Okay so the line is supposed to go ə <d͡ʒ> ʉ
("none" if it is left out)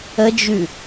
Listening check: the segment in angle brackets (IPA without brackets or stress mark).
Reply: d͡ʒ